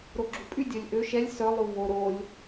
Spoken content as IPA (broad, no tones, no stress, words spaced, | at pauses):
ɾoɡ͡ǁupʼy dʲœlʲʔø ʃɛlʲ sœ lˠuvo ɾolʲ